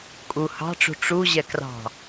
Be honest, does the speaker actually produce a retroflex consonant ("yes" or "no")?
yes